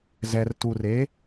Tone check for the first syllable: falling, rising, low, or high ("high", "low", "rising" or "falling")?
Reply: low